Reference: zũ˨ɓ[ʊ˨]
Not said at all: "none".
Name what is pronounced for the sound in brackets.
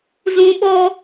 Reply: ɔ˨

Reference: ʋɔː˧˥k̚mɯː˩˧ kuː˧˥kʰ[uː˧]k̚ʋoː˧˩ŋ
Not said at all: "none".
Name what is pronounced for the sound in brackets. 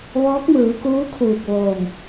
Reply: uː˧˩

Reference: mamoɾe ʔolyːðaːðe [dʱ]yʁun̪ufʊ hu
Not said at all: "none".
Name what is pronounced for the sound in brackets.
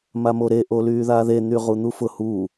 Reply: n̪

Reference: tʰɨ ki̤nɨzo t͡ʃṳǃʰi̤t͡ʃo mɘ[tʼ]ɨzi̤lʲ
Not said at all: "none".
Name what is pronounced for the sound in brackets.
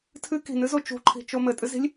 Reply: tʼ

